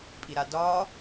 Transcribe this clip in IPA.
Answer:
pʼ i ɾ a d ɒː

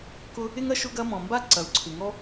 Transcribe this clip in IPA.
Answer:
k ʊ˥ | ɪ˥ ŋ ɐ˥ ʃ ʊ˥ ɡ ɐ˥ m ɔ̃˩ m b a˥ ǀ ɐ˩ u̯ ǀʰ ɪ˩ ŋ ɔ˥

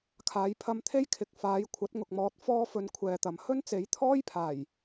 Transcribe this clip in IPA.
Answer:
kʰ aː˨˧ j pʰ ɐ˧ m t̪ʰ e˥ j kʰ ɪ˨˥ k̚ f aː˨˥ j kʷʰ ɐ˨˥ t̚ ŋ ʊ˨ k̚ m ɔː˨˥ t̚ f ɔː˥ f ɵ˨˥ n kʷʰ ɛː˨ t̪ ɐ˨ m h ɵ˥ n t͡s e˨˥ j t̪ʰ ɔː˥ j pʰ aː˨˩ j

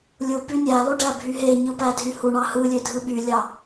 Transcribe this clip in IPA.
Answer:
lʲ u p y nʲ æ lˠ y ɖ æ bʱ y ɦ e ɲ ɯ p æ dʱ y h u ɳ ɑ h ɯ lʲ ø dʱ ɯ ɓ y lʲ ɑ

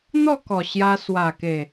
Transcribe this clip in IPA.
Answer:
n̪ ɔ˥˧ k ɔ˨˩ ɕ j a˧ s w a˨˩ k e˨˩

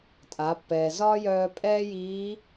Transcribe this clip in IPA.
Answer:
tʼ a˩˧ pː ɛː˩ z ɒː˥ j œː˧ pʼ ɛː˥ j iː˧˥

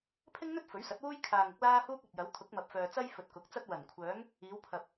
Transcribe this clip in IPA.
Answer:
pʰ ɪ˥ ŋ n̪ ɵ˥ t̚ f ɵ˨˥ ɥ s ɐ˨˥ t̚ w uː˥ j kʰ aː˧ ŋ ʊ˥ k̚ l aː˥ h uː˥ k̚ ɐ˨ t̚ j ɐ˨˥ w t̪ʰ ʊ˨˥ k̚ m ɐ˨ p̚ f œː˨ t͡s ɐ˥ j f ɵ˨ t̚ k ʊ˨˥ k̚ t͡s ɐ˥ t̚ w ɐ˨˩ n kʷʰ œː˨˥ ŋ | iː˨˧ w pʰ ɐ˨ p̚

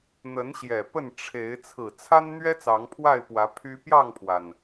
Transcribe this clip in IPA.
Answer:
n̪ ə˨˦ n ɕ j ɛ˨˩ p ə˥˨ n ʈ͡ʂʰ e˨˦ ɪ̯ t͡sʰ ɹ̩˨˩ t͡sʰ a˦ n n̪ ɥ ɛ˦ t͡s ɑ˨˦ ŋ pʰ w a˥˨ ɪ̯ p w ä˨˦ pʰ y˦ p j ɑ˥˨ ŋ pʰ w a˩ n

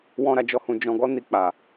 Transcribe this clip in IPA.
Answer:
w ɔ̃˦ ɾ a˧ d͡ʒ ɔ˦ h ũ˧ d͡ʒ ɔ̃˧ ɡ ɔ˦ n i˧ k͡p a˨

